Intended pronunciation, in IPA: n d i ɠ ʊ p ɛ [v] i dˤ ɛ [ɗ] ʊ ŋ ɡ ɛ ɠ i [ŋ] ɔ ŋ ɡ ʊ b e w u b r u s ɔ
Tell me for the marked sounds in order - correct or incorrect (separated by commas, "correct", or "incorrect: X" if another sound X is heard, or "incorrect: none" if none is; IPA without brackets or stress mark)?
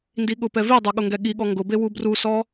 correct, incorrect: ɠ, incorrect: ɠ